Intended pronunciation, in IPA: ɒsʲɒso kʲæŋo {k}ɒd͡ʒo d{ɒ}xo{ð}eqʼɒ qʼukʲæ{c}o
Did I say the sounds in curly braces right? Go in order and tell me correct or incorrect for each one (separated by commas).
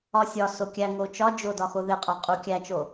incorrect, correct, correct, incorrect